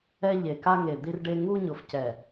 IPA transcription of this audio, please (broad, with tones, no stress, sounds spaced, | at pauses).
ɛ˦ ʎ e˨ k a˦ ŋ e˨ d̪ i˦ r ɖ e˦ ŋ u˦ ɲ ʊ˨ f c ɛ˨